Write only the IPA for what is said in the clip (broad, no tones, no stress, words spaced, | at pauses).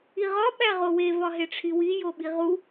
iʁɒ ɓæʁowe vɒɦeʈ͡ʂʰiwi joɓiʁu